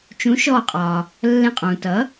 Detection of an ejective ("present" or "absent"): present